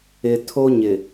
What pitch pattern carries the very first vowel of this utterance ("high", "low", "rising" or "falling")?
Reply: low